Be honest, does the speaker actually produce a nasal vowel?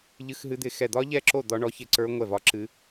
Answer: no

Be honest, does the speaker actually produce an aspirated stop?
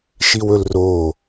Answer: no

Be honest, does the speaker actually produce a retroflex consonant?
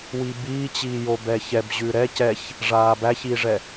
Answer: yes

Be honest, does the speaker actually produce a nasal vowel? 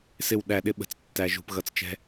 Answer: no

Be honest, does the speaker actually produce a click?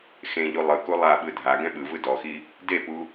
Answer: no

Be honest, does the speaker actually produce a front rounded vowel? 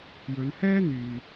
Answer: yes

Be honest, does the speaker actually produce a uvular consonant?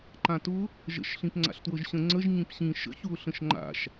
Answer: no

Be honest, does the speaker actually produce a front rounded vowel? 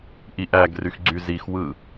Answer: yes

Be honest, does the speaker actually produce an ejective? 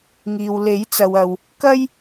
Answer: no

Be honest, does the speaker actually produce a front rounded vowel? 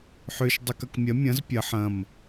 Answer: yes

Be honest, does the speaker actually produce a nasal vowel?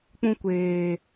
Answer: yes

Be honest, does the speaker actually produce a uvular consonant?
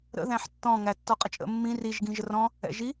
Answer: yes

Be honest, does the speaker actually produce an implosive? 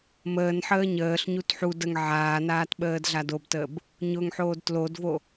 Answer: yes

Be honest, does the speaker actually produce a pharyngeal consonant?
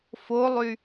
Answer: no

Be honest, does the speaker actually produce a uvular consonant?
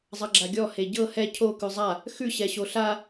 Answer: no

